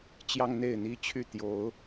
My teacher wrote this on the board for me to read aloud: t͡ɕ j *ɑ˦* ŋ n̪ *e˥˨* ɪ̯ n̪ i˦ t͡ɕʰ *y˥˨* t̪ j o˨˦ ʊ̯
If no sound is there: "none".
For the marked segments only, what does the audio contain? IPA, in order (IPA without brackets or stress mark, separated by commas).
ɑ˦, e˥˨, y˥˨